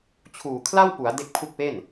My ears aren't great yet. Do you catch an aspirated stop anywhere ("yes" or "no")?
yes